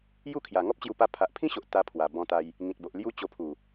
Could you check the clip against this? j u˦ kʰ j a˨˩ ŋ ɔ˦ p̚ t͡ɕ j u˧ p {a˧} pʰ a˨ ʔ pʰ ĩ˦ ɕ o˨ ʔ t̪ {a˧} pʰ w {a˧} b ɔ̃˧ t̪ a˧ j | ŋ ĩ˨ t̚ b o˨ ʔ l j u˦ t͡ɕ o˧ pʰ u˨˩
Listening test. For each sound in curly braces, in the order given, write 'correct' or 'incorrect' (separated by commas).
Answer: correct, correct, incorrect